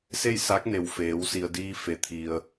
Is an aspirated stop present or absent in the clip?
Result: present